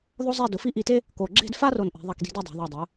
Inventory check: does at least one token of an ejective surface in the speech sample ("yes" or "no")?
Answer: no